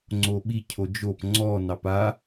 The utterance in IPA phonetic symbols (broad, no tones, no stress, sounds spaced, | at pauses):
ŋ͡ǀ o ɓ i cʰ o d͡ʒ o p ŋ͡ǀ ɔ n ɑ p a